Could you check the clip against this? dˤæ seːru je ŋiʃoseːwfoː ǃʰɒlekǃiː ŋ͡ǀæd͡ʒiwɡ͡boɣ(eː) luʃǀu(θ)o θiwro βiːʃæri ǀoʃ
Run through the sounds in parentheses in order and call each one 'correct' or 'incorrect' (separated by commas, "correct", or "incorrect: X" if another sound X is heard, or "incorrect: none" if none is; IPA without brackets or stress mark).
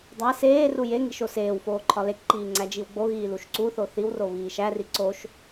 incorrect: iː, correct